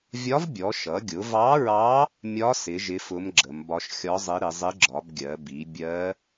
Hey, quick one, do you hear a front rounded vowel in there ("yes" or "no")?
no